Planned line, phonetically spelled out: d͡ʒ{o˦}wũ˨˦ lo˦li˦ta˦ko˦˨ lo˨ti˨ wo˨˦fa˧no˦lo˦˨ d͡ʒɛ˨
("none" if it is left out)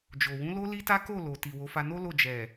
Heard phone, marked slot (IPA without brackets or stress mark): o˨